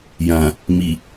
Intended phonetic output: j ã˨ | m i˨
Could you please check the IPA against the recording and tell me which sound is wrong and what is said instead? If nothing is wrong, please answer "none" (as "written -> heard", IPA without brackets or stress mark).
none